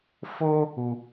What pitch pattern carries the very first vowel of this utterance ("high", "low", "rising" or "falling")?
high